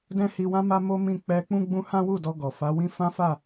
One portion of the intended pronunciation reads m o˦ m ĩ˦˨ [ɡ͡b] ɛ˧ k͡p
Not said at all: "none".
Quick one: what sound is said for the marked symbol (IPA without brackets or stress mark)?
k͡p